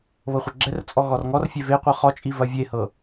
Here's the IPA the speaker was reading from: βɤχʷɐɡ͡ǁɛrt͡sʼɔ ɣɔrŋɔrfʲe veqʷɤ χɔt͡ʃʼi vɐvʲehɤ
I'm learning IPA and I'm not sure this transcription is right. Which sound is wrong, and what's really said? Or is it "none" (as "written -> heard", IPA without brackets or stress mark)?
none